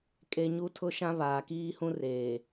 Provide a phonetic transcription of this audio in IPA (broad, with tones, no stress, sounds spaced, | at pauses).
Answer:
kʼ e˦ ɲ u˦ tʰ ʊ˦ ʃ ã˦ β aː˨ k iː˦ h ũ˦ r eː˨